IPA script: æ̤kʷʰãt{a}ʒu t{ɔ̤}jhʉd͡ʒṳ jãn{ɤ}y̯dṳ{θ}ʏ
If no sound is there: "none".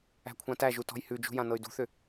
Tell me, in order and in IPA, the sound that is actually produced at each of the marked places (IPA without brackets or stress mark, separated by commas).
æ, ɔ̤, ɤ, θ